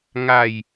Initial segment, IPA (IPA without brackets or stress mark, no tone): ŋ